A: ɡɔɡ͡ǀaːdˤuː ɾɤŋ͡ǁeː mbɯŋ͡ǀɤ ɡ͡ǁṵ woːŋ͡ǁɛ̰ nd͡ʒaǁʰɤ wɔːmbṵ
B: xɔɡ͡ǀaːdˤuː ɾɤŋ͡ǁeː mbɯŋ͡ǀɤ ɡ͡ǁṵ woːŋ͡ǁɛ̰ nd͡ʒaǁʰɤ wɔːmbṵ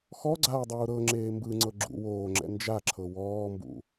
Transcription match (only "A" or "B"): B